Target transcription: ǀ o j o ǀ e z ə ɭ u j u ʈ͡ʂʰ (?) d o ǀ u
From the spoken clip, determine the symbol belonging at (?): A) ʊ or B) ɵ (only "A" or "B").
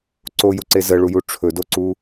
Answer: B